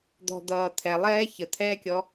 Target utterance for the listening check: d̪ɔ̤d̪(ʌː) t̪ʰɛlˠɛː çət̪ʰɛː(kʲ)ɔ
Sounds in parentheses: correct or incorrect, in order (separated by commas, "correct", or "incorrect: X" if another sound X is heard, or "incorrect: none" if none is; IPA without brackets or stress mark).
correct, correct